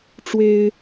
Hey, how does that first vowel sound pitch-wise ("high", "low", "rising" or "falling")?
high